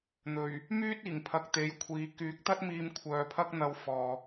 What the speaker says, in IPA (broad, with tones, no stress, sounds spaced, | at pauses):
n̪ ɵ˨˩ ɥ | m yː˥ t̚ iː˨˩ ŋ pʰ ɐ˨ k̚ t̪ e˨˧ j kʷʰ iː˨˧ k yː˨˥ k̚ t̪ ɐ˥ t̚ m iː˧ m kʷʰ œː˨ pʰ ɐ˥ k̚ n̪ ɐ˧ w f ɔː˨